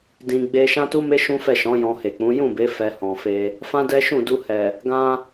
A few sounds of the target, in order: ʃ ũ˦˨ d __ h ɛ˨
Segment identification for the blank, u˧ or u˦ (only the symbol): u˧